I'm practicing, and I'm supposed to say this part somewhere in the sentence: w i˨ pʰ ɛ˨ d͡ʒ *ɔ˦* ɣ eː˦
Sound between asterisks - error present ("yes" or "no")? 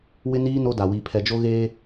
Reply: yes